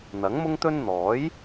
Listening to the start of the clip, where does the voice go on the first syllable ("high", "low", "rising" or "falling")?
rising